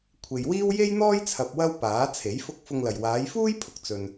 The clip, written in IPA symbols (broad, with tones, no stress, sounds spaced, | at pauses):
kʷʰ e˨ j w iː˥ w j e˥ j n̪ ɔː˥ j t͡sʰ ɐ˨ p̚ w ɐ˥ w p aː˨˥ t͡sʰ e˨˥ j f ʊ˧ k̚ f ʊ˧ ŋ l ɐ˨ j w aː˨˧ j f uː˥ j pʰ ʊ˨˥ k̚ t͡s ɵ˨ n